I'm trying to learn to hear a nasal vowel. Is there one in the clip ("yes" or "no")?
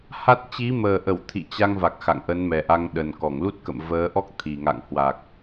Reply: no